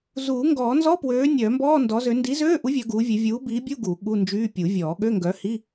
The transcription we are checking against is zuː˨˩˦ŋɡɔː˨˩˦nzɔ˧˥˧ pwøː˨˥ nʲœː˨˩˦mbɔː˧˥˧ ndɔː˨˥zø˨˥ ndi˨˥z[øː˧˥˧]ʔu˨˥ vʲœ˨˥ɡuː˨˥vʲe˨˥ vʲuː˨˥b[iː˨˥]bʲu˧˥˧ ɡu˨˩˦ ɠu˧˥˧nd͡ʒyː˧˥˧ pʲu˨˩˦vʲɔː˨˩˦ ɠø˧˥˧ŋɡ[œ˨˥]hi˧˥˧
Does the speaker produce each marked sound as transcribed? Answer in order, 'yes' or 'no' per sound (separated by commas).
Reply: yes, yes, yes